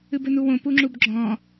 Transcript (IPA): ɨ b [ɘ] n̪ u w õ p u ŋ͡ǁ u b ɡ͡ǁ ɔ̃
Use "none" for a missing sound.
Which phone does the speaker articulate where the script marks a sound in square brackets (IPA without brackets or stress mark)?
ɘ